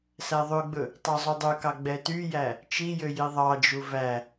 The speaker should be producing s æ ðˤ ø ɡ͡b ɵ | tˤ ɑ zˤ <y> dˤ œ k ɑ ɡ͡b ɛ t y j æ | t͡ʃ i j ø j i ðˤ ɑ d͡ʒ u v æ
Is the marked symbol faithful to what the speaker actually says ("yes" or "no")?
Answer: no